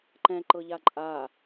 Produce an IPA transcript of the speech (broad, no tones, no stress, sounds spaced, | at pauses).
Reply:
ǃ ɛ̃ ǃ ɤ ʎ a ǃʼ a